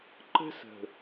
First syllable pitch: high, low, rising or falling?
high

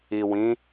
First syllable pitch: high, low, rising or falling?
low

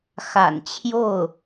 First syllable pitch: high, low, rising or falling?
low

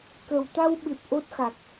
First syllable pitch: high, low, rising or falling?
low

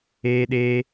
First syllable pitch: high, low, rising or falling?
high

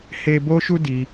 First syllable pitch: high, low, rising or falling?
high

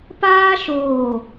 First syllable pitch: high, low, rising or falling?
high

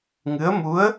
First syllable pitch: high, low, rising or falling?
rising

